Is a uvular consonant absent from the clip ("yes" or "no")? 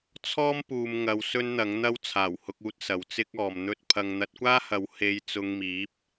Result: yes